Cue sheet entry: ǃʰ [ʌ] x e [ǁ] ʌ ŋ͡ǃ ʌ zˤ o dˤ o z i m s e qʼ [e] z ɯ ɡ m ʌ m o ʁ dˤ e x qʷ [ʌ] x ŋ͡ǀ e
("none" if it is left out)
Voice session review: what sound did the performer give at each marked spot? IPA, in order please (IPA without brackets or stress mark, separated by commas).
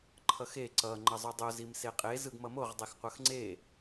ʌ, ǀ, e, ʌ